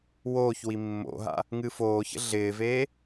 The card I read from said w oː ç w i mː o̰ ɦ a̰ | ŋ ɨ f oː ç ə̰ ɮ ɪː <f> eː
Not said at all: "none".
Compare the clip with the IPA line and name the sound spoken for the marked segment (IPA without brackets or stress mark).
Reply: v